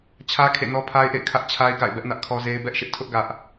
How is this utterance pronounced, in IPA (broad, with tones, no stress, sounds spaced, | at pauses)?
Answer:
t͡ɕʰ ä˦ kʰ ḛ˦˨ n ɔ˦ pʰ a˦ ɪ̯ ʔ ḛ˦˨ ɪ̯ kʰ ä˦ ʔ t͡ɕʰ a˦ ɪ̯ ɡ a̰˦˨ ɪ̯ b ɛ˦ ʔ n ä˦ ʔ kʰ ɔ˦ z e˦ ɪ̯ b ɛ˦ ʔ ʃ ɪ˦ ʔ tʰ ʊ˦ ʔ ɡ ä˦ ʔ